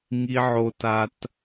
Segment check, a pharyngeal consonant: present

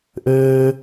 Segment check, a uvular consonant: absent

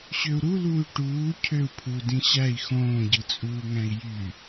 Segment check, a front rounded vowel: present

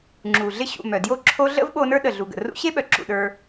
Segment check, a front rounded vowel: present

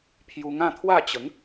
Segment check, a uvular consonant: absent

